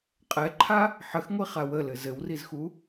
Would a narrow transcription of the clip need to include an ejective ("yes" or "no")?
yes